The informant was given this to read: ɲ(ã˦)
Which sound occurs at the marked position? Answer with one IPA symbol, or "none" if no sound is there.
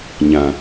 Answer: ã˨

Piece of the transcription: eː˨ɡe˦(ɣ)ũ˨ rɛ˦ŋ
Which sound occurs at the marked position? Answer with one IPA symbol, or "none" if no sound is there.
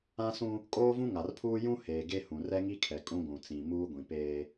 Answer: h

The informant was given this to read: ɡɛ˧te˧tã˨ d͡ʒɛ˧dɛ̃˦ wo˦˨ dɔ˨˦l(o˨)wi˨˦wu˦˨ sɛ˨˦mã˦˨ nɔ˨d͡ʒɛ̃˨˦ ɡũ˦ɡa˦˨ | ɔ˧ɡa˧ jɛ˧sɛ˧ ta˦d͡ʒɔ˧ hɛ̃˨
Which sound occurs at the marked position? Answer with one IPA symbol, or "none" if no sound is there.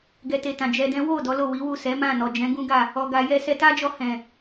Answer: o˦˨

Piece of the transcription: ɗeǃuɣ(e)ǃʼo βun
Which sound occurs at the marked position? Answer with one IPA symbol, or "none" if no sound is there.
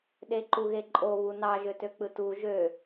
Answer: e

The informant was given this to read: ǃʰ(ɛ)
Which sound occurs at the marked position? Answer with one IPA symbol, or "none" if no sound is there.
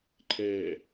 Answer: ɛ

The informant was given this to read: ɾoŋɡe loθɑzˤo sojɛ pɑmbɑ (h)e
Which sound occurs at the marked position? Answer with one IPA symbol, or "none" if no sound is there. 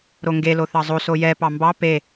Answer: p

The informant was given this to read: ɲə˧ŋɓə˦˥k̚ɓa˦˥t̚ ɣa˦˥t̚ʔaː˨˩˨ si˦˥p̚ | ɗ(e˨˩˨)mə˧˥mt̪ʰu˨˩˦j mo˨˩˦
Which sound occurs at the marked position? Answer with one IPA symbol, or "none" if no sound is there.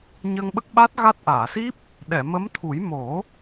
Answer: ɛ˨˩˨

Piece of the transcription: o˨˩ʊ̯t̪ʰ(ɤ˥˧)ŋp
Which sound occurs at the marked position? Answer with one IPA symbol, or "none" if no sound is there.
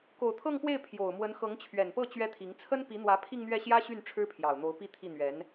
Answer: ɤ˥˧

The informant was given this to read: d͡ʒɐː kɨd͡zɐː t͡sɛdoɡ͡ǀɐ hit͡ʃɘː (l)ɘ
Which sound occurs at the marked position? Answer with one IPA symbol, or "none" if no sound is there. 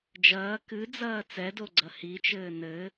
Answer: n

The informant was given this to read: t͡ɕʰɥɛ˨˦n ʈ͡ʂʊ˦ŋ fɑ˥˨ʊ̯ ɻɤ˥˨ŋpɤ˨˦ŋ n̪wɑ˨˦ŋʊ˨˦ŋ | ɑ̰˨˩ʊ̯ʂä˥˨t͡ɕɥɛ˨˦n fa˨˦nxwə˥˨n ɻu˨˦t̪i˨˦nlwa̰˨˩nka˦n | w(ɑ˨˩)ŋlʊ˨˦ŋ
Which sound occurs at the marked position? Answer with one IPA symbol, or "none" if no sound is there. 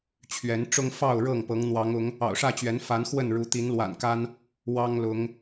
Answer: ɑ˦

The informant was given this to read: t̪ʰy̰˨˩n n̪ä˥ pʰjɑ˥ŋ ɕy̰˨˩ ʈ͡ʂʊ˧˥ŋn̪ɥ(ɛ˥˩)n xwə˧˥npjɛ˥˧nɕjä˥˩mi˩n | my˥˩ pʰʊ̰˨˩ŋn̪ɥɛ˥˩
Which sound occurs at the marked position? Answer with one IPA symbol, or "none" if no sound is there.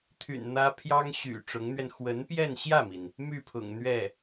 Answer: ɛ˧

